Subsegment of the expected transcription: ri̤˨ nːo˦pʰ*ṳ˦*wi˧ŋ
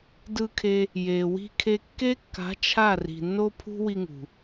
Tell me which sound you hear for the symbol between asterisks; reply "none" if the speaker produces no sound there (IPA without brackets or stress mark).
ṳ˦